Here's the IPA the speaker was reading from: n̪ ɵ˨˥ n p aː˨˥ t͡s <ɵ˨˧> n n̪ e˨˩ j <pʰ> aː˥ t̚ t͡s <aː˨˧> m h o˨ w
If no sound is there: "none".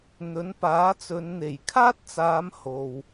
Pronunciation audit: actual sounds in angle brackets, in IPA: ɵ˨˧, kʰ, aː˨˧

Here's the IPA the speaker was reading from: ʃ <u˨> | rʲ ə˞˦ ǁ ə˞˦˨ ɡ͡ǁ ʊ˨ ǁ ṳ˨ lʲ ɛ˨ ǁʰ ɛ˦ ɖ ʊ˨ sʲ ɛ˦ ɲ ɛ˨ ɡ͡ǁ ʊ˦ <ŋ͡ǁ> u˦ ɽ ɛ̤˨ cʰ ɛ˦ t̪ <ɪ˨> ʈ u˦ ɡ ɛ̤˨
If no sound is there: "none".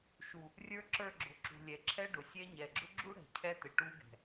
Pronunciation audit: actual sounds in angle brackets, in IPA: u˨, ɡ͡ǁ, ɪ˨

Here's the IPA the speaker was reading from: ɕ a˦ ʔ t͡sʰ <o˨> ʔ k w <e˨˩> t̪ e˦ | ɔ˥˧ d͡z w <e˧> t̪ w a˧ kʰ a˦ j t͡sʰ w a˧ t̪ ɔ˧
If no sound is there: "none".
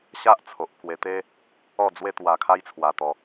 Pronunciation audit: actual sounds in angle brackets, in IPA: o˨, e˧, e˦

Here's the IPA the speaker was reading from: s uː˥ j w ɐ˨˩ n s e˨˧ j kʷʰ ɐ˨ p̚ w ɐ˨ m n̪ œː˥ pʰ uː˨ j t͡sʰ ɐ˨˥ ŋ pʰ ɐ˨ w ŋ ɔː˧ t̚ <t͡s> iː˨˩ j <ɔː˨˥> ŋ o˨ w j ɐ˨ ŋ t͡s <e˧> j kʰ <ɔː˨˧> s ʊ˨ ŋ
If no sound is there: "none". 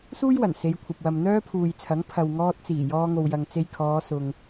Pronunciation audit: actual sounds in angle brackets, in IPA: t͡s, ɔː˧, e˧, ɔː˨˧

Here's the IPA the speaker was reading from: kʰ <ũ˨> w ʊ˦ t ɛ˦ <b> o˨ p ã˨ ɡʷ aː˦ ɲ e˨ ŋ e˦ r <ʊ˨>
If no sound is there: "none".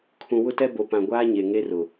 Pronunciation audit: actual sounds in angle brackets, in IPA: ũ˨, b, ʊ˨

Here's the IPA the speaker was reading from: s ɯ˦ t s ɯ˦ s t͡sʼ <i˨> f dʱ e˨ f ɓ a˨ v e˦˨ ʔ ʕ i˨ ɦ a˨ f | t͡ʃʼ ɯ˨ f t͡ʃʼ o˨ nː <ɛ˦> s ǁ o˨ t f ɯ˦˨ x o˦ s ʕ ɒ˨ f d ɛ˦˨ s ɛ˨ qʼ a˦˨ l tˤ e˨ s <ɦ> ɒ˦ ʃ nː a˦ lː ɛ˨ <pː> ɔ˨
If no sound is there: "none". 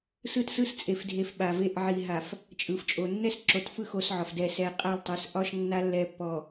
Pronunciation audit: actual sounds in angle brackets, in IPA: e˨, ɛ˦, ʔ, pː

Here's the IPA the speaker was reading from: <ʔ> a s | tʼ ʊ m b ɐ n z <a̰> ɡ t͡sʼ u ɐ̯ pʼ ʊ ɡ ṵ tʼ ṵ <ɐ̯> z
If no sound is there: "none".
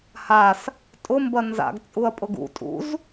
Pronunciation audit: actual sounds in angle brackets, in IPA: h, a̰, none

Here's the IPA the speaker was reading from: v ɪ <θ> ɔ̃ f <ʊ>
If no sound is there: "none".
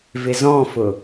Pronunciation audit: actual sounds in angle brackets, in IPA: z, ʊ

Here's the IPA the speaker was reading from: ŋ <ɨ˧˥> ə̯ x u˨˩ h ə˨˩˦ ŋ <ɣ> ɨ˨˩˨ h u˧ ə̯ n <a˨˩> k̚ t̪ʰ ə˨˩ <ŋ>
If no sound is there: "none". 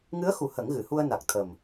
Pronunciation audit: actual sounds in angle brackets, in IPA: ɨ˧˥, ɣ, a˨˩, m

